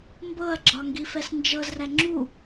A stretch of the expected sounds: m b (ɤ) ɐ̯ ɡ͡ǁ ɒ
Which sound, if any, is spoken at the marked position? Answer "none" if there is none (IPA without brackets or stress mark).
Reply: ɤ